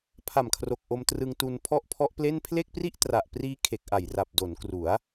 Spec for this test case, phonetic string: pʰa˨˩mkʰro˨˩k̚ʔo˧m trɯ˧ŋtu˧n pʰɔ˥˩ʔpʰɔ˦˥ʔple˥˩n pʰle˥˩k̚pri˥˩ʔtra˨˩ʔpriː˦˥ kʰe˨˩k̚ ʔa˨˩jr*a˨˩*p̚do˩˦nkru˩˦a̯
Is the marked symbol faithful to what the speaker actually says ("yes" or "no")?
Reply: yes